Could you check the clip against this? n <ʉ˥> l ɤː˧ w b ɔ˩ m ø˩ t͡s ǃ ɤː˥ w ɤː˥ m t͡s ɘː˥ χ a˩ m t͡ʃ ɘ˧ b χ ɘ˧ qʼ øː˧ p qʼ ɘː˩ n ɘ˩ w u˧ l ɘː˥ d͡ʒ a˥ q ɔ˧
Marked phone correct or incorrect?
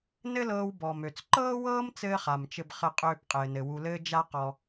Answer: incorrect